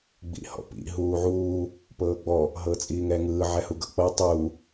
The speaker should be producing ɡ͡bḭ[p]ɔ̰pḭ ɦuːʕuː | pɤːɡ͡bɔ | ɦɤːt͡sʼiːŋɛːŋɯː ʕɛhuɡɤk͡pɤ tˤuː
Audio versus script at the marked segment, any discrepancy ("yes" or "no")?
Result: yes